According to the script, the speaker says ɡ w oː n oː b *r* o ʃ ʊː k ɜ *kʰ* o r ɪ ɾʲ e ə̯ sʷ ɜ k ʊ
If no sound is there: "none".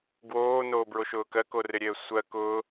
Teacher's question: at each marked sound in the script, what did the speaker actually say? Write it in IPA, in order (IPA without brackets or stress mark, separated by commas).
ɹ, k